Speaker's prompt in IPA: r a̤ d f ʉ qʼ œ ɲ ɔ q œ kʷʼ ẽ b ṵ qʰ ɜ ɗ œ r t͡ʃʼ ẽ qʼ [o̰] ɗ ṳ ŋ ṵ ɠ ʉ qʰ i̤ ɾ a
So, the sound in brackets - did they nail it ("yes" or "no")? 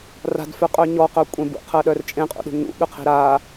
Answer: no